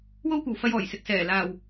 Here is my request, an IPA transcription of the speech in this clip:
wo˥wkʷɐ˨wfɐ˧j ɔː˨˩j sɪ˨k̚sɛː˨˩ laː˨˩w

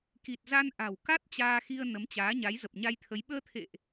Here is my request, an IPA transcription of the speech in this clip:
ki˨˩t̚za˧n ʔa̤˨˩wka˦˥t̚ t͡ɕaː˧xi˧ə̯ nə˨˦mt͡ɕaː˨˦ɲa˨˦j zə˨˩p̚ɲa˧jt̪ʰə˨˦j ɓəː˧t̪ʰḛ˧˨ʔ

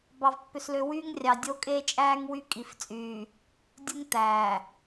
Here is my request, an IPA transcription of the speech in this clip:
bɑ˦vpːø˦slø˦ wyː˦ŋrʲɑ˨ dʲo˦kʼe˦t͡ʃʼæː˦ŋ wy˦kʼi˨ft͡sʼyː˨ | dʲu˦ŋ t̪æː˨

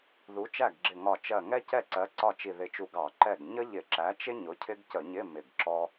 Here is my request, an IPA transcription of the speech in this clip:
ðu˨˥t͡ʃæ˥˩ɡɡ͡ǁɪ˧˩ŋɒ˧˩ t͡ʃɜ˧˩ŋɛ˥cɛ˥˩ǀɜ˨˥ ǀɒ˥˩t͡ʃi˧˩ðɪ˧˩t͡ʃu˧˩ ɡɑ˧˩˧ǃɛ˥˩ɡ ɲə˥ʎɪ˧˩˧ǁæ˨˥t͡ʃɪ˥ ɲʊ˨˥cʰɪ˥ɡ cə˧˩˧ɲɪ˧˥˧ mɪ˧˩ɡǁɔ˥

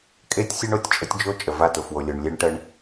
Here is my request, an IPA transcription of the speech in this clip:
kʼe˦tʲsʲʊ˦ɳ o˨tʲt͡ʃʼə˦tʲd͡ʒo˦ t͡ʃʼə˨va˦˨ tʊ˨fwo˨lʲo˨ɳ lʲe˦ɳʈə˦ɳ

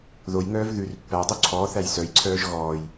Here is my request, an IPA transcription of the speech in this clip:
ðojŋœːv ðʉr pːædˤu ǀʰɔːθæj sœjǀʰœːʒ ɣɔːj

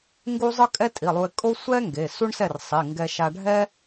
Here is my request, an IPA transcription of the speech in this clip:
ŋɡu˥ zˤɯ˥kʼɛ˥tʼi˩˧˩lˠu˧ɪ̯ kʼo˥ sʷɛ˥ ŋɡe˩˧˩su˥ɳsɛ˥˩r sˤi˩˧˩ ŋɡɛ˧ʃa˧ ɖʱɛ˥

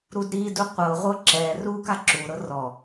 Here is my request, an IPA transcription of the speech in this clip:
ɾudɾidu qʷɤʁʷɤ ǁɛru kaǁuɾɤ rɔ

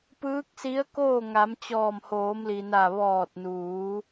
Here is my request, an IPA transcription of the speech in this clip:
pɯː˧˥k̚si˧˥ə̯koː˥˨ ŋa˩˧mt͡ɕɔː˧˩mhoː˩˧mli˩ na˧˩ ʋɔː˧˩t̚nuː˩˧

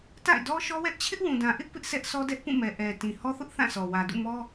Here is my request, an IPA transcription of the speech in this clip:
ta̰˦˨ɪ̯dɔ˦ʃɔ˦wɛ˦ʔ t͡ɕʰɪ˦ʔwũ˨dã˨ ʔɪ˦ʔ pɪ˦ʔ sʰɛ˦ʔsʰɔ˦ dɛ˦ʔpũ˦˨mɛ˨ ʔɛ˨ tĩ˨hɔ˦θʊ˦ʔ θã˦˨sʰɔ˨ wä˨dṵ˦˨mɔ˦

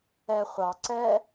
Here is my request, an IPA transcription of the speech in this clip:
ɛ χʷɑ ǀɛ

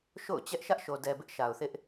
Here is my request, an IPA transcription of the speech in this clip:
ʃo̰˦˨ʊ̯t͡ɕɛ˦ʔ ʃä˦ʔʃo˨dɛ˨ bɪ˦ʔʃa˨ʊ̯θɪ˦ʔ

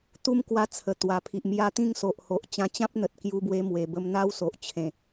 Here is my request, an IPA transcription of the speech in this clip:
t̪u˦mkwa˧ t͡sʰə˨˩ t̪wa˨˩pʰi˨ʔmja˥˧ t̪ĩ˦ŋso˨ʔho˨ʔ t͡ɕã˧t͡ɕã˦p̚n̪ə˨t̚ kju˧bwe˧ mwe˨˩bə˦m n̪a˦wso˨ʔt͡ɕʰẽ˨˩

